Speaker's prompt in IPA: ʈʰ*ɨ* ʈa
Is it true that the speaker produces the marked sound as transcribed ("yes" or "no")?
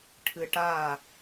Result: yes